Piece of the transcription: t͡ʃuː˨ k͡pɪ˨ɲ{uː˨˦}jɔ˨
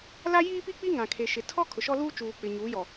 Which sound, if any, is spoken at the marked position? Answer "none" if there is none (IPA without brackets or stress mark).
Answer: uː˨˦